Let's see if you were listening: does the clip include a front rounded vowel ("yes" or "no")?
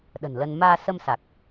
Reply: no